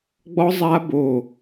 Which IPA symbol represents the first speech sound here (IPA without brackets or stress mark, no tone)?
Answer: ɡ͡b